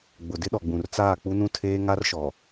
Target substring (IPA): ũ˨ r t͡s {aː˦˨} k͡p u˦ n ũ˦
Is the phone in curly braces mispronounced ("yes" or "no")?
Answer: no